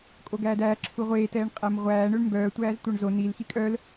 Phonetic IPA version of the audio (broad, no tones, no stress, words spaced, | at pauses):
kʼoɡæːdæː ǁʰuʁʷeː tɛːɳqʼæmʁʷæː ɳøɳmbœː tʷæːztʷœɳzo nil xikʼœl